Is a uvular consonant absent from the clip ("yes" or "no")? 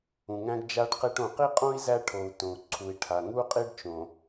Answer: no